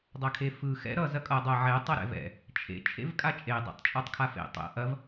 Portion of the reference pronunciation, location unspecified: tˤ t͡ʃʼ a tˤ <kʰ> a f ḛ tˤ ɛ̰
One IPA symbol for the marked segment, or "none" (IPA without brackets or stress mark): kʰ